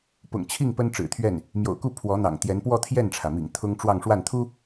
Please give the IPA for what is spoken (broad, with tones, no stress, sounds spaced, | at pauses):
p ʊ̰˨˩ ŋ t͡ɕʰ i˥˩ ŋ p ə˥ n ʈ͡ʂ ɻ̩˨˩ t̪ʰ ɥ ɛ˥˩ n | m j o̰˨˩ ʊ̯ k u˥˩ pʰ w ɔ˧˥ n̪ ɑ̰˨˩ ŋ t̪ j ɛ˧˥ n p w ɔ˥˧ t̪ʰ j ɛ˥˩ n ʈ͡ʂʰ ä˩ m ḭ˨˩ ŋ t̪ʰ ʊ˥ ŋ ʈ͡ʂ w ɑ˥˧ ŋ ʂ w a˥˩ n t̪ʰ u˥